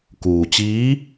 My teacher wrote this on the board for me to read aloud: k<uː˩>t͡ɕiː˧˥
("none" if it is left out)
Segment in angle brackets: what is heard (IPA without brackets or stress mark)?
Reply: uː˩